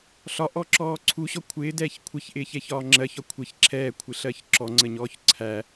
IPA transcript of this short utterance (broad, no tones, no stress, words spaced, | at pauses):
ɬɒʔɔǁɔː ǀʰuɕɔ kʷʰɪːdɛːç kʷʰɪçʔɪːçɛçɒː ŋ͡ǁɜçɒ kʷʰɪç ǁʰɛːkʷʰɪɬɜç ǁɔŋ͡ǀəɲɔːç ǀʰæ